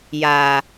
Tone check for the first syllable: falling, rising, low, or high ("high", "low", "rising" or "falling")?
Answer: low